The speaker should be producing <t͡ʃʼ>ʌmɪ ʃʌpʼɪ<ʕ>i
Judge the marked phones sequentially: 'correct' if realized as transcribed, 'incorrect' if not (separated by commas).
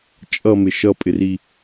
correct, incorrect